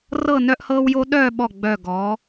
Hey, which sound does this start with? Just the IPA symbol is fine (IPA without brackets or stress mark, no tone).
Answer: r